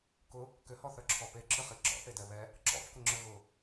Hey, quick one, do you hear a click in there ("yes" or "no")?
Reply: yes